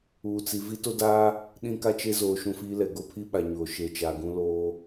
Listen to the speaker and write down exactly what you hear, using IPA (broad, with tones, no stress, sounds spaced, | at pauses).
uː˨ t͡s i˨ v i˦ t o˦ d aː˦ | ɗ ĩ˦ k a˦ t͡ʃ e˦ z oː˨ ʃ ũ˦˨ f iː˦ l ɛ˨ ɡ o˦ pʰ i˦ ɓ a˨ ɲ oː˨ ʃ e˨ t͡ʃ a˨ ɡ ũ˦ l oː˦